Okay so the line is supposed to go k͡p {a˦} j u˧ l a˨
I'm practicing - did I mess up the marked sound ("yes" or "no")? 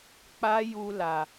no